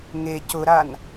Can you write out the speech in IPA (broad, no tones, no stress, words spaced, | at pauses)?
ŋe cʊɾan